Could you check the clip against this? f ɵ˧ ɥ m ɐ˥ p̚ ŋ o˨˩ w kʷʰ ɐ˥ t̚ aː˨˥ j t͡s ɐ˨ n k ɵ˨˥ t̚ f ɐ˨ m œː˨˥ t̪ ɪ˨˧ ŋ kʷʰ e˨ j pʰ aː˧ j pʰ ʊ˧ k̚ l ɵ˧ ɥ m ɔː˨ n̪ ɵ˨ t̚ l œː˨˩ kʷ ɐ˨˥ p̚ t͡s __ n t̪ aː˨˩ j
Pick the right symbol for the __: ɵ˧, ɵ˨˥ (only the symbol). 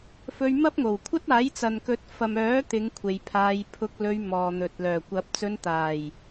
ɵ˧